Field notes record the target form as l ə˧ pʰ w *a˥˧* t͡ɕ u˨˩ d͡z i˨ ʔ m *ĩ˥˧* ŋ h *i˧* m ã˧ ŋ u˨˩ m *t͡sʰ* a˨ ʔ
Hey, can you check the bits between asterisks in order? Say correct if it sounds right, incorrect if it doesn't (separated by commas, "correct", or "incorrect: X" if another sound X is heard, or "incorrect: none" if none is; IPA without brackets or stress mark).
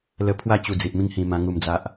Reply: correct, correct, incorrect: ĩ˧, incorrect: d͡z